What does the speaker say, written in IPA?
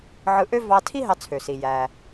ʕ ɯ˧ ʔ ø˥ v ɑ˧ tʰ i˥ ɦ ɑ˧ t͡sʰ ø˩ s i˩ j æ˩

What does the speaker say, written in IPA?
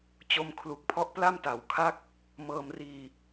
t͡ɕ o˧ m kʰ l u˦˥ k̚ pʰ ɔ˦˥ ʔ p l a˥˩ m t a˨˩ w kʰ a˥˩ k̚ | m ɤː˧ m r iː˧

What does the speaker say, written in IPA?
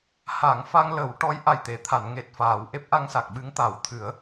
h a˨˩˨ ŋ f a˧ ŋ l ə˨˩˦ w ʈ ɔ˧˥ j ʔ a˨˩ j t̪ e˨˩˨ t̪ʰ a˨˩˨ n ŋ e˨˩ t̚ f aː˨˩˨ w ʔ e˦˥ p̚ ʔ a˧ ŋ s a˨˩ k̚ ɓ ɨ˧˥ ŋ t̪ a˨˩˦ w t̪ʰ ɨ˨˩˦ ə̯

